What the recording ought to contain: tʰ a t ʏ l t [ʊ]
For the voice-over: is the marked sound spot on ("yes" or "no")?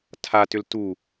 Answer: no